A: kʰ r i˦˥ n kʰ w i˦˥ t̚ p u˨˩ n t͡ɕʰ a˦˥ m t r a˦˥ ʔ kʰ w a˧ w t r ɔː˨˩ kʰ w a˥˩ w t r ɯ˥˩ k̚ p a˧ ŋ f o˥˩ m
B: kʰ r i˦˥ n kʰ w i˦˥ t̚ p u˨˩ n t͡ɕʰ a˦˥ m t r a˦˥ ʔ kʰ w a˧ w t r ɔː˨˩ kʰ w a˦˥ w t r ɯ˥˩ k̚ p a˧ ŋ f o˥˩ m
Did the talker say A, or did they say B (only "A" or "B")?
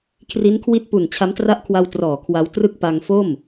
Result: B